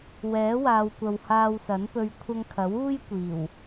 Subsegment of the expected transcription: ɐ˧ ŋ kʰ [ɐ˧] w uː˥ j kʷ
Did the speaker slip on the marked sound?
yes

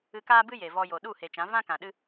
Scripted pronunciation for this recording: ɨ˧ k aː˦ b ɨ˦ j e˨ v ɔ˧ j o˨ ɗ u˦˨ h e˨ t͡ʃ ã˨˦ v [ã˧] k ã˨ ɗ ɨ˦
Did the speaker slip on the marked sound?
yes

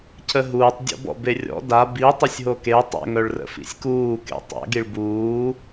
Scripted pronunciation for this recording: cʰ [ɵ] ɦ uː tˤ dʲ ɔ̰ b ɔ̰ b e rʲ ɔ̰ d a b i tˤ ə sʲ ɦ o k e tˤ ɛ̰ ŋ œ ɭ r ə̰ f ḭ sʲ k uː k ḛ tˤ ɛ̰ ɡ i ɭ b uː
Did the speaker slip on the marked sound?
yes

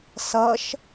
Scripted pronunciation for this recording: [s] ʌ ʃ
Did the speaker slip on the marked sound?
no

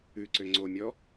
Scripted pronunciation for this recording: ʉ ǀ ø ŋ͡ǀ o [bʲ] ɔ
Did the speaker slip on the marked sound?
yes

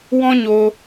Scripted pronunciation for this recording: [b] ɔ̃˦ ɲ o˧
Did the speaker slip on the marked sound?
yes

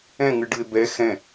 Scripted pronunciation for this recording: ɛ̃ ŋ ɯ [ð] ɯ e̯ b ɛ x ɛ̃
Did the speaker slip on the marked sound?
yes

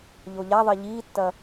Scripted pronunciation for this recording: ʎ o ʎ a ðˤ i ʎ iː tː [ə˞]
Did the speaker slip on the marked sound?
yes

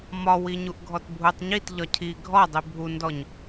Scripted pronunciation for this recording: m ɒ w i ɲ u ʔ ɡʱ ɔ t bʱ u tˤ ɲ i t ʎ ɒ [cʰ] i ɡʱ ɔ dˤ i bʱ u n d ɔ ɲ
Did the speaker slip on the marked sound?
no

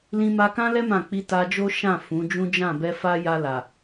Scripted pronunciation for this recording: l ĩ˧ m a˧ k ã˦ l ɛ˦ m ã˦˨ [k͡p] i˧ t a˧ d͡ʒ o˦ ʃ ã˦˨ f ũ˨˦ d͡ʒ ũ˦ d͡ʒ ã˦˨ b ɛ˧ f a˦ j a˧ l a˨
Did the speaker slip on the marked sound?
no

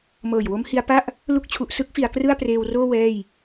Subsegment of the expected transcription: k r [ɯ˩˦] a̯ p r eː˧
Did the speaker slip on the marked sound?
yes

